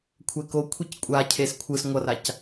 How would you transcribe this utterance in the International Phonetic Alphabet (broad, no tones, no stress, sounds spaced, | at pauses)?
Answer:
kʷʰ ɛ k o kʷʰ i c kʷʼ a cʰ e s kʷʰ ɯ s ŋʷ ʌ r a c